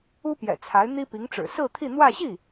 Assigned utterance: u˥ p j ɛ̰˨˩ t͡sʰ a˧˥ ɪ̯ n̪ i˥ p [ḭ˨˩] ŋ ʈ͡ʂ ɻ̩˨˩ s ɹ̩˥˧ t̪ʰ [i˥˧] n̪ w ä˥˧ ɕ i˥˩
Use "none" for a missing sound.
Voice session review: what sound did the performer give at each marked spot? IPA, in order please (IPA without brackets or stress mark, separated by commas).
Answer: i˧˥, i˥˧